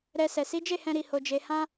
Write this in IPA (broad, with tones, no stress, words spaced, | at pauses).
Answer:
ɾɛ˧ sɛ˨si˨˦d͡ʒe˦˨hɛ̃˧ ɾi˧ho˧d͡ʒe˧ hã˦